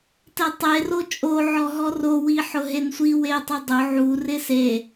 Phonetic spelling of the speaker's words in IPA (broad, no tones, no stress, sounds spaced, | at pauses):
t ɛ tˤ e r o t͡ʃʼ o ʕ ɔ ɦ ɔ r o w i ħ ʊ ɦ e n sʷ i w e tˤ ʊ dˤ ʊ ʕ u r ɪ s e